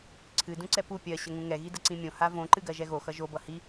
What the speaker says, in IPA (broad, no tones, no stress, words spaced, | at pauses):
ǀʰɨ dũǀɛpu pʲɜ ɕəŋũŋɛ ɣidəǀĩmʲõ havõ ǃɨɡɜʒɛɣo xʌʒo bʌhi